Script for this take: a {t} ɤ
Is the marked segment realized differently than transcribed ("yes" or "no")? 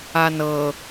yes